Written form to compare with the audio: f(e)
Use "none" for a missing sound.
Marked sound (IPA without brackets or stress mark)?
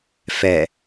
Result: ɛ